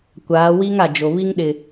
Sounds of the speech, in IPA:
kʷ aː˨˦ w i˦ ŋ a˨ d͡ʒ o˨ β i˦ ŋ ɗ ɪ˨

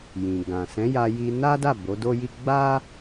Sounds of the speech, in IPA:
j ĩ˨ ɡ ã˨ s ɛ̃˨˦ j a˧ j i˧ n a˦ d a˦˨ b o˨˦ d o˦ j i˦ ɡ͡b a˦

